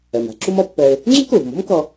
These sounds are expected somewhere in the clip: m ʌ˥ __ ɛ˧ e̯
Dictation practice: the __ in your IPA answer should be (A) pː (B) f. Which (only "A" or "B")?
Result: A